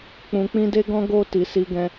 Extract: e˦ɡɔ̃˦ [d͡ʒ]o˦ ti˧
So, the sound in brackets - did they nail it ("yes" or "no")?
no